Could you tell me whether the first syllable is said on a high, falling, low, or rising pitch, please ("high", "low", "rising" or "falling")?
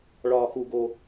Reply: high